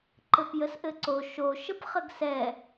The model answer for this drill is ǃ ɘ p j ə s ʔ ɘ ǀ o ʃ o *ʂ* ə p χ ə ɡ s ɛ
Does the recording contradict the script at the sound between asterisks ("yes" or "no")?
yes